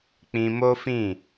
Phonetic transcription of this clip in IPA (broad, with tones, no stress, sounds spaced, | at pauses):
k͡p ĩ˧ m o˦ f ĩ˦˨